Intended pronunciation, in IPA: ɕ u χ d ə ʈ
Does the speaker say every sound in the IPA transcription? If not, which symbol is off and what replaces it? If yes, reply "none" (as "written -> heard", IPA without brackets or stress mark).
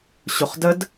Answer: ʈ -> d